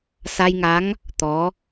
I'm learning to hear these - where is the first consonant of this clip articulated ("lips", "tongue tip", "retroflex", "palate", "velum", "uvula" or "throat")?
tongue tip